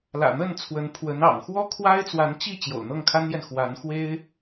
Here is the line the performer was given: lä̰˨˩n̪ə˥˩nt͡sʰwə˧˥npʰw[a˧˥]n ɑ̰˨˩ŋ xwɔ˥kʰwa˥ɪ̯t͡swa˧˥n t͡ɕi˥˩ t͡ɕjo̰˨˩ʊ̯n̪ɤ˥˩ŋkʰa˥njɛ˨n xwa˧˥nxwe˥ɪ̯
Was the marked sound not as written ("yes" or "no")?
yes